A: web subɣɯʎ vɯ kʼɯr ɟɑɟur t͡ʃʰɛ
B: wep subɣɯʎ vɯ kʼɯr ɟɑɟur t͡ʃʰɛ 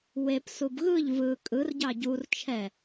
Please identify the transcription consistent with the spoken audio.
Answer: B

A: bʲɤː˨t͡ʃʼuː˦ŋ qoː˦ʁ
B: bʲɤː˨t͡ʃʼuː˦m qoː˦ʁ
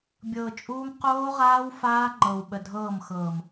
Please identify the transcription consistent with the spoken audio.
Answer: B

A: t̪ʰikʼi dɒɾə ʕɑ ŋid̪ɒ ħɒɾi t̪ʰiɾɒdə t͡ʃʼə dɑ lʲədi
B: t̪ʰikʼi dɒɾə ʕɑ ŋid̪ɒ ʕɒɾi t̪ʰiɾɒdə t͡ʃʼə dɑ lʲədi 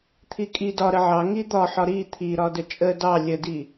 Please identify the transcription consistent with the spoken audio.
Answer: A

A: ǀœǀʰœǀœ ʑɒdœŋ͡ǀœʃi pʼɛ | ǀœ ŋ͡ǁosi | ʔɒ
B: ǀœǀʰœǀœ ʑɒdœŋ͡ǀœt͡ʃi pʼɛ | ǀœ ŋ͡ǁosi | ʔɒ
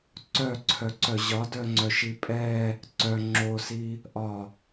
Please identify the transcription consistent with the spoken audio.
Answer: A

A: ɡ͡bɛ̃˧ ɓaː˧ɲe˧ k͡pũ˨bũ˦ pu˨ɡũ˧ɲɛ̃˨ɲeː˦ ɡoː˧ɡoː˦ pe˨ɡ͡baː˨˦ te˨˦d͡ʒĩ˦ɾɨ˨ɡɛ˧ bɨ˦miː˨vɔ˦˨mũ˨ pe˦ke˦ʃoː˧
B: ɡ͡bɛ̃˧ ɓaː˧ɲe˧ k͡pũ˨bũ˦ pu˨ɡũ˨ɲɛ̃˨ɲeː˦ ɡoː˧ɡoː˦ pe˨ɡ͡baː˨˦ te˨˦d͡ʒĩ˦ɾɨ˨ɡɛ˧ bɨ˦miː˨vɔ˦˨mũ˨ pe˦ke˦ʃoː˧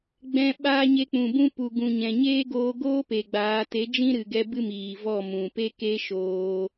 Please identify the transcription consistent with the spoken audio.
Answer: B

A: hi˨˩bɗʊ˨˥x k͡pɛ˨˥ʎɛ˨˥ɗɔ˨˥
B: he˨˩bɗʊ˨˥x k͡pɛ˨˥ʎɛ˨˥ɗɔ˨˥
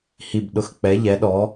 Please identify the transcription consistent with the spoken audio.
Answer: A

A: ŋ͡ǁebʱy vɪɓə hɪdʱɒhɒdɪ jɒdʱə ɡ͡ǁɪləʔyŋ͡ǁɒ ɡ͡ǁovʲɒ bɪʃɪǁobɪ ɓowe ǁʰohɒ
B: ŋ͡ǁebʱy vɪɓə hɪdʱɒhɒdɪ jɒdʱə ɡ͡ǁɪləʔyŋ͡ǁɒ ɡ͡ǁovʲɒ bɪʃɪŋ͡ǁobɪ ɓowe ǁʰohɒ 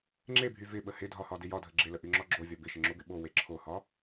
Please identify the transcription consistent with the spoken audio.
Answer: B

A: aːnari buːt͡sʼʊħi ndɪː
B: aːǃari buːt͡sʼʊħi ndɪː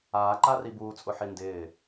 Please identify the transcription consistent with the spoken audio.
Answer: B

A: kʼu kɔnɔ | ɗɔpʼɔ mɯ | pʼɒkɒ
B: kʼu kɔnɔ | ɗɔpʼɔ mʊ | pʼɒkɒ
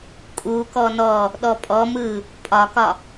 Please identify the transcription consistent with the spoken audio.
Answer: A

